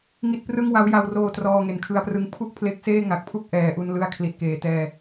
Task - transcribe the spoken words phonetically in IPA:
ŋ i˦˥ t̚ p r ɯ˥˩ ŋ w a˦˥ w j a˧ w r oː˧ t r ɔː˧ ŋ e˩˦ n kʰ ɯ˧ a̯ p r ɯ˦˥ ŋ pʰ u˥˩ k̚ pʰ l e˦˥ k̚ s eː˥˩ ŋ a˨˩ k̚ pʰ u˥˩ k̚ ʔ ɛː˩˦ ʔ u˧ n l ɯ˧ a̯ kʰ l i˨˩ t̚ k eː˨˩ t ɛː˧

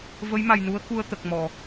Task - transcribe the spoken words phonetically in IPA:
v ə˧˥ j m a˨˩ j n u˧˥ ə̯ k u˧ ə̯ t̪ ə˨˩ k̚ m ɔ˨˩˨

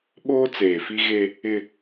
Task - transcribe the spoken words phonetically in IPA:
ɓ oː˦ t͡s eː˨ f i˦ ɣ e˦ | ɪ˦

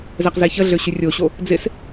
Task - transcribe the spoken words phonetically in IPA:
z ɛ q z e ç ə ɮ ø ɕ y rʲ o ɕ o | d͡z ɪ s

